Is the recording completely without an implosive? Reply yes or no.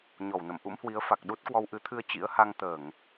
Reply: no